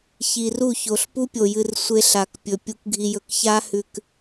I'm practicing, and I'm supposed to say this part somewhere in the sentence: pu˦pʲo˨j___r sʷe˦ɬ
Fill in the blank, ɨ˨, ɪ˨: ɨ˨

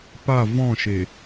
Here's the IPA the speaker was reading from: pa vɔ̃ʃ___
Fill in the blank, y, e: e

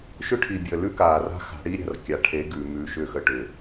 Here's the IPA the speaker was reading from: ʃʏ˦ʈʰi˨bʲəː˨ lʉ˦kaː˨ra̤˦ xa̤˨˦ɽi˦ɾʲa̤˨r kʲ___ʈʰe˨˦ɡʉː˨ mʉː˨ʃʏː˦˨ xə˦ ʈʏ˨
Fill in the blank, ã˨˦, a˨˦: a˨˦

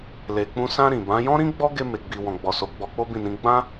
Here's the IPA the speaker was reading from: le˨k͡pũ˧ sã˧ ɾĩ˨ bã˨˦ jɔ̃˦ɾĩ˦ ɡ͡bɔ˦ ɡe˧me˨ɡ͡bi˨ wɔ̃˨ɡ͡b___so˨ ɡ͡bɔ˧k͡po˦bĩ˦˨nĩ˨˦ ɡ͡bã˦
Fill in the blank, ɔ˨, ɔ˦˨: ɔ˨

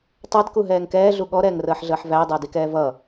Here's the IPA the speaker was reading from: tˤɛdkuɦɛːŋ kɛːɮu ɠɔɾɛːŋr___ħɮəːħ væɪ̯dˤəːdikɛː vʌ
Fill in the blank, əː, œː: əː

